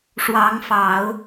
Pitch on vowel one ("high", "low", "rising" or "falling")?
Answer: rising